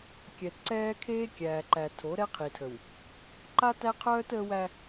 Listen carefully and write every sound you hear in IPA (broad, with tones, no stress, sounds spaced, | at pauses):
kʲ ɛ˨ t ǀ ɛː˦ kʰ eː˦ kʲ æː˨ ǃ æ˨ tʰ o˨˦ ɾ ɛ˦ qʰ i˨ tʰ ə˨ w | ǃ a˦ t æ˦ qʰ œː˦ t əː˦ w æ˦